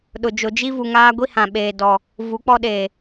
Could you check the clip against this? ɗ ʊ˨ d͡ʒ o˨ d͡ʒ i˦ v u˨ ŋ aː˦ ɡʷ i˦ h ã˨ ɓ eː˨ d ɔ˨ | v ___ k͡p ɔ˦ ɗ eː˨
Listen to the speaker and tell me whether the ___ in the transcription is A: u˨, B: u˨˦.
B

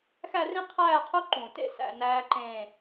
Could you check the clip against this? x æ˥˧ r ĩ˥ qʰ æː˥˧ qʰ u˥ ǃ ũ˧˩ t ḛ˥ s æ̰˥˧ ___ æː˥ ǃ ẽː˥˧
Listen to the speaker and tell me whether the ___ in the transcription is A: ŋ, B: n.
B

